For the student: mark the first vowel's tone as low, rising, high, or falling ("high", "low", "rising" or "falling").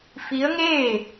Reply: rising